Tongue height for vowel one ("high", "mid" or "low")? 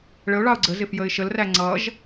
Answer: mid